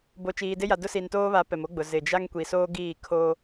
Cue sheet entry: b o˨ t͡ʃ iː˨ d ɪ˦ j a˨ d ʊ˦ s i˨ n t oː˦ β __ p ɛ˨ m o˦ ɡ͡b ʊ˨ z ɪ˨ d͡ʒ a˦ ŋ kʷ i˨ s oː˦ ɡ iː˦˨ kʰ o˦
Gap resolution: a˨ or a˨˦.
a˨˦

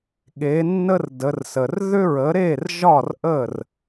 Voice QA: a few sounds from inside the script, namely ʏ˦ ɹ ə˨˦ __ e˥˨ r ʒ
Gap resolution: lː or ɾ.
ɾ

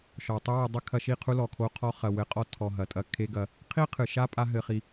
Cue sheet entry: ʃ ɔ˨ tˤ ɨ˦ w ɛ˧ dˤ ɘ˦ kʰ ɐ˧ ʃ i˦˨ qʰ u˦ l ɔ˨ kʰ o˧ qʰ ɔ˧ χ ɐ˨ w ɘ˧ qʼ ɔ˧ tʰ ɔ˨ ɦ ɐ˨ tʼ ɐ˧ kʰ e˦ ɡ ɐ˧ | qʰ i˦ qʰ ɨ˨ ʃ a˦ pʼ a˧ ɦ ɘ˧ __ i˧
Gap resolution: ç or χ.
χ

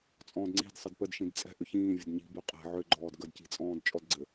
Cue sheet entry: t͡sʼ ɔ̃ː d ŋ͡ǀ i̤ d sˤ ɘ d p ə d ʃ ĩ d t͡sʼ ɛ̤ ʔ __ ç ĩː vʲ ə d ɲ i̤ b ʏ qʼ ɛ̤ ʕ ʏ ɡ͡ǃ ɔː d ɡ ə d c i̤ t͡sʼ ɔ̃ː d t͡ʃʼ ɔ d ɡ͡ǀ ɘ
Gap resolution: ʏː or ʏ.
ʏ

